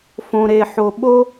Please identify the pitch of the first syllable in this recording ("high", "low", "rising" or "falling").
low